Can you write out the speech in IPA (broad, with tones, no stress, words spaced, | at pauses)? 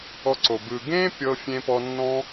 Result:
ɔ˧ǀo˨ bɯ˨ɡẽ˦ pʲɤ˦ fʲẽ˦pɔ˦ nːɔ̃˦